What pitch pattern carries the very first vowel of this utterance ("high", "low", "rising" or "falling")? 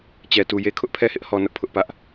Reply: low